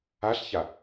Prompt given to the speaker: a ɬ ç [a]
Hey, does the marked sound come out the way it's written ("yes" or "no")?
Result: yes